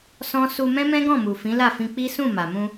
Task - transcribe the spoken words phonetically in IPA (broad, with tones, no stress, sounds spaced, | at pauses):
s ɔ̃˦ s u˧ m ɛ̃˦ m ɛ̃˦ ɡ ɔ̃˦˨ m u˨ f ĩ˨˦ l a˦˨ f ĩ˧ k͡p i˦ s ũ˦˨ m a˨ m ũ˧